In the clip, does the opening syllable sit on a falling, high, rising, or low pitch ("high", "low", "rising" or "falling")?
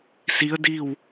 rising